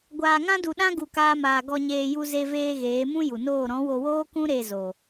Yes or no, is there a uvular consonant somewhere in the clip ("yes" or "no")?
no